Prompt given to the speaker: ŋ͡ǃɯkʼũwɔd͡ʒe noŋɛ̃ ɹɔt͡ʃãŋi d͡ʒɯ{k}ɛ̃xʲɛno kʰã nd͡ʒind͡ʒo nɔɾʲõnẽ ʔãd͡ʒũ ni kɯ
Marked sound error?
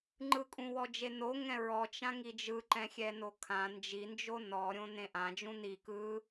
yes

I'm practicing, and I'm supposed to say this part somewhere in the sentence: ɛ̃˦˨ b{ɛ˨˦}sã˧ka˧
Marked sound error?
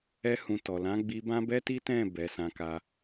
no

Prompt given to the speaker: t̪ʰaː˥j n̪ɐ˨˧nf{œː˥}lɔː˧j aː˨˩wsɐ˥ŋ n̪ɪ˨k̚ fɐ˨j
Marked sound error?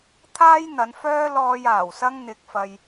no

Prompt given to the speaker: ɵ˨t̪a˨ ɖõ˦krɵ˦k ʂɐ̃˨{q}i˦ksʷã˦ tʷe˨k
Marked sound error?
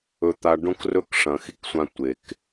yes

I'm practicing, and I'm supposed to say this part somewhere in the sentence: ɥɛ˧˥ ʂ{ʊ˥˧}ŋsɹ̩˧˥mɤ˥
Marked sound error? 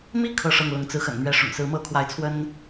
yes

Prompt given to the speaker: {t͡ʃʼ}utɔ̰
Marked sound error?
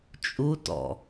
no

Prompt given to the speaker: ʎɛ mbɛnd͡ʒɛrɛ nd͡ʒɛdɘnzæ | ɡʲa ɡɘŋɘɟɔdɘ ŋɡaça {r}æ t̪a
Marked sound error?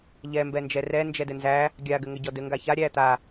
yes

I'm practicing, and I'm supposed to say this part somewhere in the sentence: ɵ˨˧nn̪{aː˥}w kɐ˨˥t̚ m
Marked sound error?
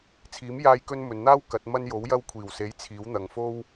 no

